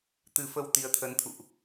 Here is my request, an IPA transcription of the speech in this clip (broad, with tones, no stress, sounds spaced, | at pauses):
t̪ ɨ˨˦ f ə˧ w t̪ i˨˦ ə̯ t̪ʰ ə˨˦ n t̪ʰ ṵ˧˨ ʔ